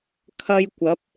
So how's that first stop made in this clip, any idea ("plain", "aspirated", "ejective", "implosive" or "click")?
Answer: aspirated